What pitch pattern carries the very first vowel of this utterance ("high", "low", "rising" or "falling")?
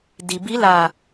low